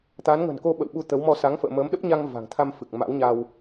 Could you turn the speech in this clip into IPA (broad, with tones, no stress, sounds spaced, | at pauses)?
t̪ a˨˦ n ŋ ə̤˨˩ n k o˧ ɓ ə̰˧˨ w ɓ u˧ t̪ ə˨˦ w m ɔ˧ s a˨˦ ŋ f ə̰ː˧˨ m əː˨˦ m ɗ ə˦˥ p̚ ɲ a˧ ŋ v a̤˨˩ ŋ t̪ʰ a˧ m f ɨ˨˩ k̚ m a̰˧˥ w ɲ a˧ w